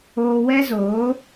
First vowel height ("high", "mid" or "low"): mid